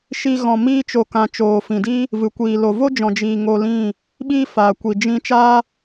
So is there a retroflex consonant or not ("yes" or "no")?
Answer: no